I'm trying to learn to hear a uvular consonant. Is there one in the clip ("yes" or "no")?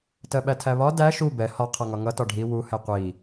yes